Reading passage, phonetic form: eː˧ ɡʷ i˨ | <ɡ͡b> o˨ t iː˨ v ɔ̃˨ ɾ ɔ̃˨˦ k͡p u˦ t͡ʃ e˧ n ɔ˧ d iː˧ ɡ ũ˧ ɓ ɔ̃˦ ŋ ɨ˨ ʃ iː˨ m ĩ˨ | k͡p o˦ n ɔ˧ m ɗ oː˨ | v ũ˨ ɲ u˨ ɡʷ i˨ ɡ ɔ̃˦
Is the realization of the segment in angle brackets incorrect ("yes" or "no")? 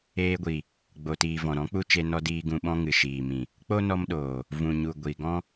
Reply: no